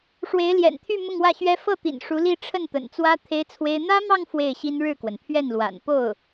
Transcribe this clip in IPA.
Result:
ʂwe˧˥ɪ̯ljɛ̰˨˩nt̪ʰy˥˧ mʊ˥˧ŋwä˥˩ɕɥɛ˥ fɤ˥˩t̪ḭ˨˩n ʂu˧˥li˥˧ ʈ͡ʂʰə˥˩nt̪ə̰˨˩nt͡swä˥ t̪ʰe˥ɪ̯t͡sʰwe˥ɪ̯ n̪ä˥mɑ˥˧ŋ fwe˥˩ɪ̯ɕi˥n ɻɻ̩˥˩kwə˩npʰɥɛ˥˩nlwa̰˨˩n po˥˩ʊ̯

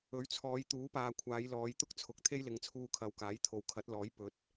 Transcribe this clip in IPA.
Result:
ɵ˨˥ɥt͡sʰɔː˨˧jt̪uː˨˥paː˨ kʷʰaː˨˧jlɔː˨˧jt̪ʊ˥k̚t͡sʰʊ˨˥k̚ t̪ʰe˥jlɪ˨˧ŋt͡sʰuː˧ kʰɐ˨wkaː˨˥jt̪ʰo˨wkʰɐ˨˥t̚ lɔː˨˥j pɵ˨˥t̚

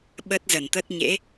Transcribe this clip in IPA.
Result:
ɓə˦˥t̚zə˧˩nt̪ə˦˥t̚ ɲḛ˧˥

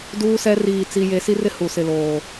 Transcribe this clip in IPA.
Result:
duː˦sɛ˦ riː˦˨t͡si˦je˦ si˦rɪ˦ hu˨ sɪ˨loː˨

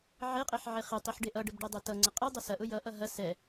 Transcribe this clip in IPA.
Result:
ʕeqʼeħ ʕeχetˤiħ ɖeʔʌɖəb ɖedˤetʌŋ͡ǀə qʼi dˤʊsɐʔʊ jʌʔʌ ɦɐ sɛ

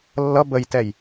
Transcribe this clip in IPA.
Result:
lːʌ bəjtɛj

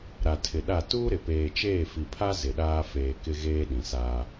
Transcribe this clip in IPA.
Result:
ɾa˨tʰɪ˨ɗa˦˨ tuː˦ɾɪ˨peː˨t͡ʃeː˦˨ fi˨pʰa˦ zɪ˨ɗaː˦ feː˨ kɪ˦ɣeː˦ɗĩ˨saː˦

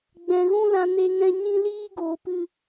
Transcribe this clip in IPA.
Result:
ɡ͡bɛ̃˨ɣũ˦lã˧ ne˦ŋɛ̃˦ ɲĩ˦ liː˦ ɡoː˧pɨ˦

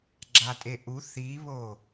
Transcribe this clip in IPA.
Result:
ɡ͡ǁatʼeʔu θiβo

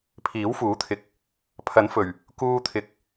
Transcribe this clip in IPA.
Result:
pʰiː˨˥wfuː˨˥t̪ʰɪ˨˥k̚ | pʰɐ˨˥nfɵ˨˩ɥ | kuː˧t̪ʰɪ˨˥k̚

